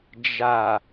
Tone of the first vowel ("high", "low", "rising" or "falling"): low